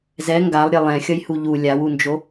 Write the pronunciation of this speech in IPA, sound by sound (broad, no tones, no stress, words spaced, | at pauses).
zɛ ŋɡalˠɾʲe lˠɛ̃xʲʌjhu ʎu lʲawund͡ʒo